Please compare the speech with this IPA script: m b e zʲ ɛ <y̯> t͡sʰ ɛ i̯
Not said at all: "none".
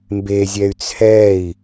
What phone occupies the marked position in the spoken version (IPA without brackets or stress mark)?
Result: y̯